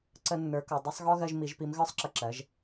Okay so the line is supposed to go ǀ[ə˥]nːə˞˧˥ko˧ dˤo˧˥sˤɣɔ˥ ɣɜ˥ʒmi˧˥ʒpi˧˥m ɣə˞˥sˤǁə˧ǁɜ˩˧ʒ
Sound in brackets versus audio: correct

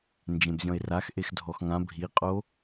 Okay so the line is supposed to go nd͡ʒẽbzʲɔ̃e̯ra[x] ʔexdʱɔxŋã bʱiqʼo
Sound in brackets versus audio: correct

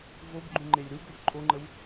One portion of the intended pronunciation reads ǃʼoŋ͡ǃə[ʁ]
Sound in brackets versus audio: incorrect: w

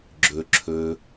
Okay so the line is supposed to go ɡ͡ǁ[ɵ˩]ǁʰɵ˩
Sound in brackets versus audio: correct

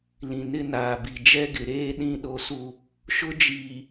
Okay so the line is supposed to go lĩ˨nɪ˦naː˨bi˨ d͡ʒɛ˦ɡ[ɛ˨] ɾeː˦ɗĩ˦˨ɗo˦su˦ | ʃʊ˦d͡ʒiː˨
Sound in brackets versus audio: incorrect: ɪ˨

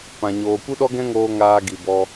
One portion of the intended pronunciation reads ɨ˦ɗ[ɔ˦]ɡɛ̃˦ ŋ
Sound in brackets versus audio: correct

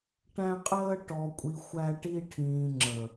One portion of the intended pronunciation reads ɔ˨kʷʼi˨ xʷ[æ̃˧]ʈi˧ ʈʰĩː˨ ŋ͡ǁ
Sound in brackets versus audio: incorrect: æ˧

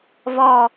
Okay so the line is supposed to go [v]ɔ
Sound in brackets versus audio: correct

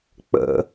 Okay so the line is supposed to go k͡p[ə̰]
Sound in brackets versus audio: correct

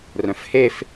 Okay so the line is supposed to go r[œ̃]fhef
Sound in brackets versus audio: correct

